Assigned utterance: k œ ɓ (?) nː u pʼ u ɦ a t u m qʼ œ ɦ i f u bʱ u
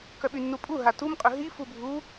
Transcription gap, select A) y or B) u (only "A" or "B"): A